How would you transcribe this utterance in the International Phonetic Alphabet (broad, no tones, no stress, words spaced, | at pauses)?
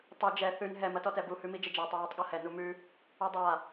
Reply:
tˤɯ d͡ʒɛ θʉn ɦɛm ɐtɔtɛbu hʉmid͡ʒəd͡ʒa tˤɐɹətˤɠɔhɛ numʉ | udˤa